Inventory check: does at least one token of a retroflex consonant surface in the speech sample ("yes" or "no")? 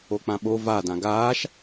no